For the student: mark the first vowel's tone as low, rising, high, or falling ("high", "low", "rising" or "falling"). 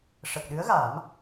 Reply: low